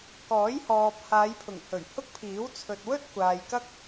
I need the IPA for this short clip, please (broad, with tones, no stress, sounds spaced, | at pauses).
k ɔː˨˥ j h ɔː˨ p̚ h aː˨˧ j pʰ ʊ˨˩ ŋ h ɵ˨˩ ɥ h ʊ˥ k̚ pʰ iː˨˥ w t͡sʰ ɵ˨ t̚ w ɵ˥ t̚ kʷ aː˨ j k ɐ˥ k̚